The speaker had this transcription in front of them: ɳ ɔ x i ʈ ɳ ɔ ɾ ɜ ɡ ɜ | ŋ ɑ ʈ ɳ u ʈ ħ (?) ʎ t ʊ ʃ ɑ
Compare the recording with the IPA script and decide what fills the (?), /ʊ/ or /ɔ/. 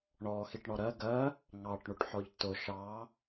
ɔ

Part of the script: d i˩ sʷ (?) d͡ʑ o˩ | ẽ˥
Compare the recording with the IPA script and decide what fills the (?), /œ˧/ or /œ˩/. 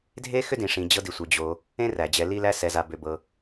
œ˩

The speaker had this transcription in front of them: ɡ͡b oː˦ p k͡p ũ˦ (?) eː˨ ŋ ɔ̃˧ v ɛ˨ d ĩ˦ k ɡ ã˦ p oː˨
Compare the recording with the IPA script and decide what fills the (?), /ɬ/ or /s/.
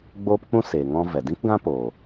s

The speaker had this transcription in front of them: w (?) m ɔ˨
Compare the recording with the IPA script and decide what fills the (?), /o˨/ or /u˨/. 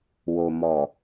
o˨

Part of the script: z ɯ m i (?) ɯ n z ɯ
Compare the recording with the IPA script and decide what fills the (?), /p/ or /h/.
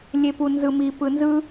p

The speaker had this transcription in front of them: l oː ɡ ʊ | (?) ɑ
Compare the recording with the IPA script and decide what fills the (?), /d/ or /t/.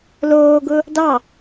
d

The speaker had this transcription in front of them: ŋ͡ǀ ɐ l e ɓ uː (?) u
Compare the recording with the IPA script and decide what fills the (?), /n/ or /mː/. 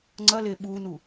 n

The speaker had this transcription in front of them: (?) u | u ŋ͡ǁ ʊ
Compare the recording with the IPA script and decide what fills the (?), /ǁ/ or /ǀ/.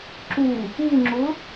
ǁ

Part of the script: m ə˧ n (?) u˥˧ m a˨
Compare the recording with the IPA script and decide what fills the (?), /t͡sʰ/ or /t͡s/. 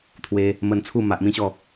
t͡sʰ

